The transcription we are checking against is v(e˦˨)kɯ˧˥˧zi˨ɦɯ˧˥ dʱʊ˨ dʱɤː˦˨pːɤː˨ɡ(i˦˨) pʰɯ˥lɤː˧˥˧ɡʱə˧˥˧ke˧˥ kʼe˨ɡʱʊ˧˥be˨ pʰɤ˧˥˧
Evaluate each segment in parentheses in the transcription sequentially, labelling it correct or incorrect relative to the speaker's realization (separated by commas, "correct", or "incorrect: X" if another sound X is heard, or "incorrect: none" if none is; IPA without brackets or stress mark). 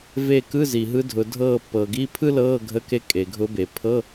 correct, incorrect: i˧˥˧